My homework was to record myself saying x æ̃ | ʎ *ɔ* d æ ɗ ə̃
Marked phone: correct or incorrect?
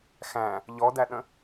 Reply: correct